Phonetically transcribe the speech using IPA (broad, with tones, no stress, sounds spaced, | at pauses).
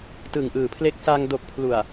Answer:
t ɯ˨˩ ŋ ʔ ɯː˨˩ pʰ l e˦˥ k̚ s a˧ ŋ d o˨˩ k̚ pʰ l u˨˩ a̯